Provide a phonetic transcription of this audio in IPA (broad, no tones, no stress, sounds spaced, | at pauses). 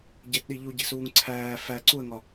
ɟ e t ɗ i ʎ u ɟ i̤ s uː ŋ ǀʰ æː f æ ǀ u ə̯ ŋ ɒ